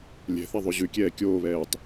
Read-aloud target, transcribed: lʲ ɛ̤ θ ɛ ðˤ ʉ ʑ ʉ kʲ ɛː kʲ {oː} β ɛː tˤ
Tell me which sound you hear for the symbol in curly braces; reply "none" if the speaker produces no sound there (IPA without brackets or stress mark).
oː